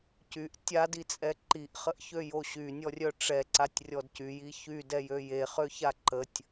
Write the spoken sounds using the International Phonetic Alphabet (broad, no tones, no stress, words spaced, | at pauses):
cyʔ tʲadit͡sʼɛ ǃiʔχəʔçøjo ɕynʲɔrʲœ ʈ͡ʂɛǀatʲrʲɔd cyji çydɛjø jeχøça ǃətʲ